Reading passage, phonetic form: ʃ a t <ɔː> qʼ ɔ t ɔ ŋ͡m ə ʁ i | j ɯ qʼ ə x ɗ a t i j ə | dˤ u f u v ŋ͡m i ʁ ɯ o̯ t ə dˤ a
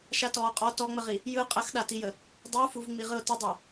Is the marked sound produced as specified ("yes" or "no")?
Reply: yes